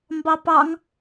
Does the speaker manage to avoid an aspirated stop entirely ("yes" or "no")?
yes